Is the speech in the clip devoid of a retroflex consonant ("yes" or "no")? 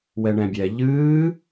no